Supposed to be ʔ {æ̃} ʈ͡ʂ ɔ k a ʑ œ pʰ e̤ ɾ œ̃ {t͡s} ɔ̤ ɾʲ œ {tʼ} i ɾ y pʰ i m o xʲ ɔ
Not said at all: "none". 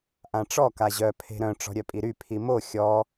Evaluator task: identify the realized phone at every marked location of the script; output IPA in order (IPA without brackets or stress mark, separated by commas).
ã, ʈ͡ʂ, pʼ